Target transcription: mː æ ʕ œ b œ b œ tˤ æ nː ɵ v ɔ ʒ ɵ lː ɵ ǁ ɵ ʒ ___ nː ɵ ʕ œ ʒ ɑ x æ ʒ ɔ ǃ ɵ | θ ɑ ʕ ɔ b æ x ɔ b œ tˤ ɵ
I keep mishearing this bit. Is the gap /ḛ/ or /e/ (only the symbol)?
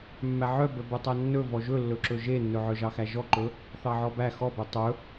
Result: e